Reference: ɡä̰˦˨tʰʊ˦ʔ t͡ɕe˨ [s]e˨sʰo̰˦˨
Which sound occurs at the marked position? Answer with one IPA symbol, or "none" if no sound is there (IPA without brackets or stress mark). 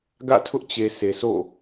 s